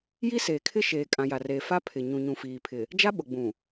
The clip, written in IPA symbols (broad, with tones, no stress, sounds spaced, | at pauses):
j i˦ s eː˨ kʰ ɪ˦ ʃ eː˨ kʼ ã˨ j a˨ r e˨ f a˦ pʰ ɪ˨ ɲ ũ˨ ɲ ũ˨ f iː˨ pʰ ɪ˨ | d͡ʒ a˦ ɓ ʊ˨ ɡ͡b ũ˨